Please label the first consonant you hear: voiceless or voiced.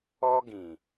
voiced